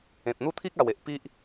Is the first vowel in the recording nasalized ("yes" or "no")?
yes